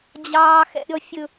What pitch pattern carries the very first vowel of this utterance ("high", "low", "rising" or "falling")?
high